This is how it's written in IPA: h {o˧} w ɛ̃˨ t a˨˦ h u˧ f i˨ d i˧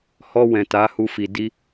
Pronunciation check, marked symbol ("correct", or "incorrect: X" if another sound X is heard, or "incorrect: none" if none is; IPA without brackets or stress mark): incorrect: ɔ˧